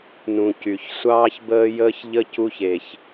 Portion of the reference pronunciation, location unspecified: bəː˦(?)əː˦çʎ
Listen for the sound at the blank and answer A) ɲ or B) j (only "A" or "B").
B